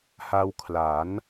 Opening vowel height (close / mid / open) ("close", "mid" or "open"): open